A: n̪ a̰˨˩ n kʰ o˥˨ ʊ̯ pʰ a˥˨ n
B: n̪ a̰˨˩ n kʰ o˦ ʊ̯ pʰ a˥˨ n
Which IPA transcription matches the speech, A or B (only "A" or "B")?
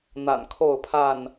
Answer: A